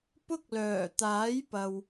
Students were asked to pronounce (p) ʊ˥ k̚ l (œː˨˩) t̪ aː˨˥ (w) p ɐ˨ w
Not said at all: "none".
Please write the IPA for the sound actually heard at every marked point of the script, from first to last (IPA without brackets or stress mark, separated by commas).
p, œː˨˩, j